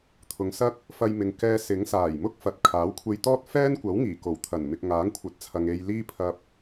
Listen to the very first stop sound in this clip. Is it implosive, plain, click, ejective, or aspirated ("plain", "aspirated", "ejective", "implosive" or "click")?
aspirated